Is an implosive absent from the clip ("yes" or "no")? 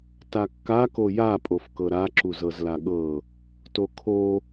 no